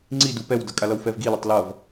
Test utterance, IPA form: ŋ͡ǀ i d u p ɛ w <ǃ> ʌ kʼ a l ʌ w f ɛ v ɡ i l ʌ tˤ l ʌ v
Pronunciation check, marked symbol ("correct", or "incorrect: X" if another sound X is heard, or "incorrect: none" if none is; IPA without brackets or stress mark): incorrect: d